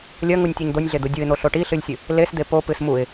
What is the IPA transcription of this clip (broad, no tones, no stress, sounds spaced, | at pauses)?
lʲ ɐ ŋ u nʲ tʲ u ɲ d̪ o nʲ ɮ e d̪ u dʲ u ɪ̯ n̪ o ɬ o ʈ i ɬ ɨ lʲ sʲ ɨ | l e s d̪ e p o p ɨ s m u ɪ̯